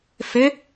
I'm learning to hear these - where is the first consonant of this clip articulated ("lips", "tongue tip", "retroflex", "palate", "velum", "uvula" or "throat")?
lips